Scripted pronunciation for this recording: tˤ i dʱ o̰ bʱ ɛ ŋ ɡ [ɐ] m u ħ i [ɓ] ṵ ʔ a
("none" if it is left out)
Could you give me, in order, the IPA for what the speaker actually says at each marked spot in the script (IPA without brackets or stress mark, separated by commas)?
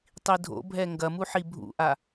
ɐ, bʱ